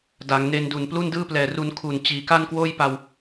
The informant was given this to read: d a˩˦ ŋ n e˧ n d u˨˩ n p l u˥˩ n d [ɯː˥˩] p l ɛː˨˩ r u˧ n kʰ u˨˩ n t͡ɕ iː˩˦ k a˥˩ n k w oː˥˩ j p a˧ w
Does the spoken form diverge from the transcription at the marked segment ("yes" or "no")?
no